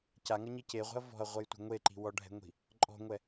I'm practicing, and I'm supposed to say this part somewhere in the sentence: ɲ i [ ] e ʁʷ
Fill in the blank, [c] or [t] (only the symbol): c